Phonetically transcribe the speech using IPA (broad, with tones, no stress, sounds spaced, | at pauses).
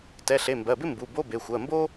t ɛ˩˧˩ ɬ e˩˧˩ m b ɜ˩˧˩ b ɪ˥ m b u˩˧˩ b o˧˥˧ b e˩˧˩ xʷ ɜ˩˧˩ m b o˥